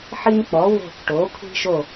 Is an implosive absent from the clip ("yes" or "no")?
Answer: yes